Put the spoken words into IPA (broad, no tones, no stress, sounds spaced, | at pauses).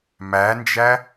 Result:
m æ n d͡ʒ æ